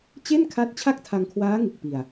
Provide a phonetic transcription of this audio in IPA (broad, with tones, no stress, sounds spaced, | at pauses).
t͡ɕ e˥˩ n kʰ a˦˥ t̚ t͡ɕʰ a˥˩ k̚ tʰ a˧ ŋ kʰ w aː˦˥ ŋ ɯ˨˩ k̚ p i˧ a̯